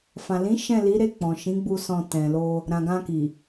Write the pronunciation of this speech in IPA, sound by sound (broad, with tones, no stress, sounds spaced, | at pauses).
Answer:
f ã˨ l ĩ˨˦ ʃ ɛ̃˦˨ l i˨˦ ɾ e˦˨ k͡p ɔ̃˨ ʃ ĩ˨˦ ɡ͡b u˧ s ɔ̃˧ t ɛ̃˨ l o˧ | ɾ ã˨ ɡ ã˧ k i˨